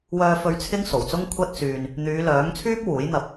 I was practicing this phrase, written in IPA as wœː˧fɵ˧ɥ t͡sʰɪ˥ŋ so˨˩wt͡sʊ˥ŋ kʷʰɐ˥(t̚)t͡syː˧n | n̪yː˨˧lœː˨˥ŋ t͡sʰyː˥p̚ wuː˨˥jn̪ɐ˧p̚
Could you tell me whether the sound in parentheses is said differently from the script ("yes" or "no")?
no